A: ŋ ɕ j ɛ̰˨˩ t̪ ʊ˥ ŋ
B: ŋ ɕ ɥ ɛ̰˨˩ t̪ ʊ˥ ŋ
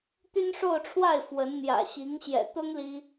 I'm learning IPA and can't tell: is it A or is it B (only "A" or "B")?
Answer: A